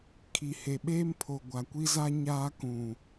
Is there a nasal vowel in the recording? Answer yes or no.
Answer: yes